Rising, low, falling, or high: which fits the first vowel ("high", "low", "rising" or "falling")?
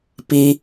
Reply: low